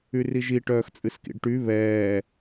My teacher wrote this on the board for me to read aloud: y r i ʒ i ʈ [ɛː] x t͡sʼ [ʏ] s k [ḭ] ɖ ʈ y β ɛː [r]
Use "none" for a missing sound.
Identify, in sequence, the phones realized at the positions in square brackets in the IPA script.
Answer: œː, ɨ, ḭ, none

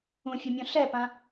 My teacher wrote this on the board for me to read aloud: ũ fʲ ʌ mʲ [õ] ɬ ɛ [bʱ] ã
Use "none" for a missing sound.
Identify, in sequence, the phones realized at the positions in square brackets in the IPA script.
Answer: õ, p

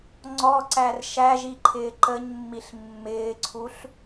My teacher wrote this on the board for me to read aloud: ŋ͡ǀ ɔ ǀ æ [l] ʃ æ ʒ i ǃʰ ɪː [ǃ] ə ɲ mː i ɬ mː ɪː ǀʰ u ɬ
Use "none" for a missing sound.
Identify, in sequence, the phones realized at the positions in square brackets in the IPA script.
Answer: r, ǃ

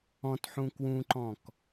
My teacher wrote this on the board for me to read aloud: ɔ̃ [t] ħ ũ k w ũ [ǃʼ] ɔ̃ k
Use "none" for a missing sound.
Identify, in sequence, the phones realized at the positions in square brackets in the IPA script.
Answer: t, ǃ

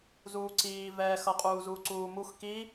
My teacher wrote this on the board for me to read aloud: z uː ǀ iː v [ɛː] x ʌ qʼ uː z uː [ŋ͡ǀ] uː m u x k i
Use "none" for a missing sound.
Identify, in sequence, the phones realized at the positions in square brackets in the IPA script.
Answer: ɛː, ǀ

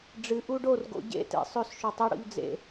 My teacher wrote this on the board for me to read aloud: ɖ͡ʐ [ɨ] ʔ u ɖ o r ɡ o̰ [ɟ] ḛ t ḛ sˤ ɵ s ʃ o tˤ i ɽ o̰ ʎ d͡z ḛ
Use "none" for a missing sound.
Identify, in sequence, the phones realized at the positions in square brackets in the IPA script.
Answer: ɨ, ɟ

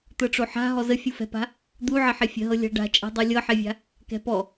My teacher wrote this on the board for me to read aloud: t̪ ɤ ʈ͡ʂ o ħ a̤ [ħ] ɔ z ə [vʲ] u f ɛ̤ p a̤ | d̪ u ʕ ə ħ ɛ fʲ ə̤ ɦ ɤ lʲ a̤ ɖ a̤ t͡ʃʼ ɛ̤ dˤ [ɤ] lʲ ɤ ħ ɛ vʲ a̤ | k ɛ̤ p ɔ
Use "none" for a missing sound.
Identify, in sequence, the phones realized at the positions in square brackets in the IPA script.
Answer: ɦ, fʲ, ɤ

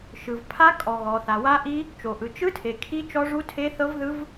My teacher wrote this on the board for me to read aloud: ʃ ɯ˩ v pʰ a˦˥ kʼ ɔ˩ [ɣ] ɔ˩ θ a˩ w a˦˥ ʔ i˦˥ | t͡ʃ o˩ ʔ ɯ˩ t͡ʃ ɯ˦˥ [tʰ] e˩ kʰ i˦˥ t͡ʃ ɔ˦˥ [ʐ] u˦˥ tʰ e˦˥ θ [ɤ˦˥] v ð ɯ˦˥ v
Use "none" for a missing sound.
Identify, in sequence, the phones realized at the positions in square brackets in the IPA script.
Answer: ɣ, tʰ, ʐ, ɤ˦˥

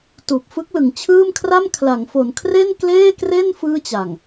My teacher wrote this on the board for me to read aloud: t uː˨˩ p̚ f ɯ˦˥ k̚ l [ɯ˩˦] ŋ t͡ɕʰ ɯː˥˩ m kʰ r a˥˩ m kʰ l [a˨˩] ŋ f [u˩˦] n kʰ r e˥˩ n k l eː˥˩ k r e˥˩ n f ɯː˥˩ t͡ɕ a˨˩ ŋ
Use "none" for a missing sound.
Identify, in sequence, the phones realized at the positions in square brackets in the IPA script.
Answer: ɯ˩˦, a˩˦, o˩˦

